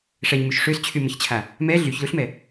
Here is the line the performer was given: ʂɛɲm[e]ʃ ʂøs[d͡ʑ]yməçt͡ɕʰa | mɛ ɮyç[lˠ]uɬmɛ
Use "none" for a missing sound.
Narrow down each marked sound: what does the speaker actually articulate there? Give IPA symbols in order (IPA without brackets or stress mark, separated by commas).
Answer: y, t͡ɕʰ, l